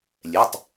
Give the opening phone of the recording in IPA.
lʲ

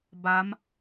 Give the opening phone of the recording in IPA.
b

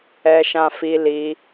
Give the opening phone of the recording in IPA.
ɛ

